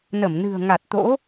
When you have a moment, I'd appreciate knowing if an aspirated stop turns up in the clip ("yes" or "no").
no